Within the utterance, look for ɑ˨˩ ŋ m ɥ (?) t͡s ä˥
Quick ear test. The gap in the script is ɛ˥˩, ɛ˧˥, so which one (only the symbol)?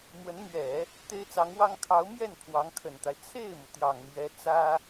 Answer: ɛ˧˥